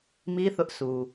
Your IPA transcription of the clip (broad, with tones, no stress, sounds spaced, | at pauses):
m i˦ θ ʊ˦ ʔ s u˨